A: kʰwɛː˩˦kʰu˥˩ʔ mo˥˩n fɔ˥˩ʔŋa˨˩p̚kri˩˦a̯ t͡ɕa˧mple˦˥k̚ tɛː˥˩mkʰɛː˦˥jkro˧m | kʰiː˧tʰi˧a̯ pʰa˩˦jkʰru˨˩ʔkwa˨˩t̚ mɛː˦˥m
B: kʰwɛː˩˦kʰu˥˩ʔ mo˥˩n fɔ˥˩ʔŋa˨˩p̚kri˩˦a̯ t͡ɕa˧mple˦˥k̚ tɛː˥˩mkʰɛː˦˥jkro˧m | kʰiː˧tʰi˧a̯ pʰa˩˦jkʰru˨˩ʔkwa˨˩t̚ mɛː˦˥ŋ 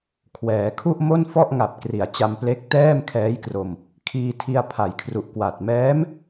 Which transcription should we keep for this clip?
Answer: A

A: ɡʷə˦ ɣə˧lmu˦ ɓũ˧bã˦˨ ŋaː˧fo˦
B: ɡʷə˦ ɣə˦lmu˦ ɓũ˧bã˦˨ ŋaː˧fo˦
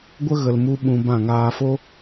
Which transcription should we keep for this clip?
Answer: A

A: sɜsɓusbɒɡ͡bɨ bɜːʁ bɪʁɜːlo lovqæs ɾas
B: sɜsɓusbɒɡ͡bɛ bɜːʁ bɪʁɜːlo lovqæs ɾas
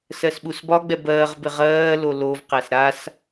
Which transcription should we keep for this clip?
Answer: B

